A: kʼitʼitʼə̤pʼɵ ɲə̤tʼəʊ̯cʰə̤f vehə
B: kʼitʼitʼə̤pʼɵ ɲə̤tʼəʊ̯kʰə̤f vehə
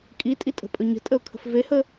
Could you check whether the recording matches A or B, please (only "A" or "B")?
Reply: B